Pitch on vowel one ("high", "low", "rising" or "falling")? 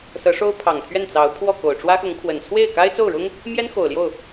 rising